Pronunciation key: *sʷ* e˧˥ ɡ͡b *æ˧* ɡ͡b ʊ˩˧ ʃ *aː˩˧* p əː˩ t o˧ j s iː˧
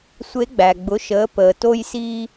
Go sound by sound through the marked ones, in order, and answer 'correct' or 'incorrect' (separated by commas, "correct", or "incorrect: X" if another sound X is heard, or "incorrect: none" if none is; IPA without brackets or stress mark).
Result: correct, incorrect: æ˩, incorrect: əː˩˧